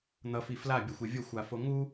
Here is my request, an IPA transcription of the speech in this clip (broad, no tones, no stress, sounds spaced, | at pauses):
n̪ ʌ f i f l a bʲ ʌ xʷ e vʲ o xʷ a f o ŋ u